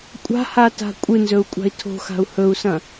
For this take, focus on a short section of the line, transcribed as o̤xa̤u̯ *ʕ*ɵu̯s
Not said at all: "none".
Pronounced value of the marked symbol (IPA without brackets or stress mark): h